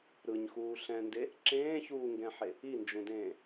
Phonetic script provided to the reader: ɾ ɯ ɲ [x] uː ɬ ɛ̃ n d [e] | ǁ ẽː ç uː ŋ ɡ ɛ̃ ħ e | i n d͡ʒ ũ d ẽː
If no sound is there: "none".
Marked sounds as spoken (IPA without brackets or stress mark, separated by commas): x, e